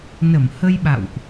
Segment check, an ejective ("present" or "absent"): absent